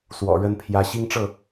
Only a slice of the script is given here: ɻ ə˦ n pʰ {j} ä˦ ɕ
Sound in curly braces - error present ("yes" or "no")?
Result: no